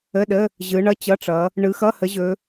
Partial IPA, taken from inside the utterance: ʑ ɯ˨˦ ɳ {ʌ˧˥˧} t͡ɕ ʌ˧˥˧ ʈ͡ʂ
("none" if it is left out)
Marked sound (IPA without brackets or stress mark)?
ʌ˧˥˧